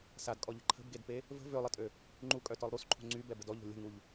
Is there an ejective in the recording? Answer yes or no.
yes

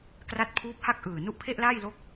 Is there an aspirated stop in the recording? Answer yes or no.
yes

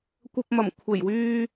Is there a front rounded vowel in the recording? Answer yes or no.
yes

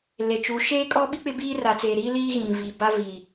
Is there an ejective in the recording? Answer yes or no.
yes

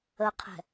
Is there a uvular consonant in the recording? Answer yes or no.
yes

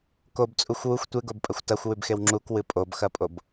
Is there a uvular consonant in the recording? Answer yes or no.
no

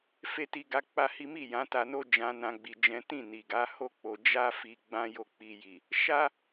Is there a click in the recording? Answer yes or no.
no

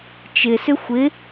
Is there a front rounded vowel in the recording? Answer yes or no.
yes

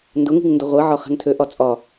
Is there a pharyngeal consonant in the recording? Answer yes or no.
yes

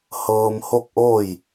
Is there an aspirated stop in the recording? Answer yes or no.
no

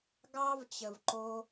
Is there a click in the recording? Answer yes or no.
yes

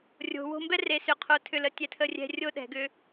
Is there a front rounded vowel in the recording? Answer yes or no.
yes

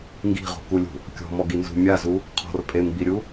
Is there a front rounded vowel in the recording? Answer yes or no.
no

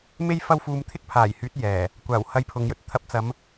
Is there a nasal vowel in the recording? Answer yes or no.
no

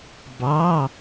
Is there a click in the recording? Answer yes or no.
no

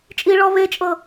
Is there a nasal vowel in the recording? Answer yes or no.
no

